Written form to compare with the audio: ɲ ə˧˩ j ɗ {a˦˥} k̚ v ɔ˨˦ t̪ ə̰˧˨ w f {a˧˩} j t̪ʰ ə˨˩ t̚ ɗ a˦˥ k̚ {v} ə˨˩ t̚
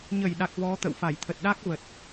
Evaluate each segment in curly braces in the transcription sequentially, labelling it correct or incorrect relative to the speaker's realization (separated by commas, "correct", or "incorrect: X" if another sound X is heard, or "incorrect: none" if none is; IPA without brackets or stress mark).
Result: incorrect: a˨˩, correct, correct